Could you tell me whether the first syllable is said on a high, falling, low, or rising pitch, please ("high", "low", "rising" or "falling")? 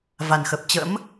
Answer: low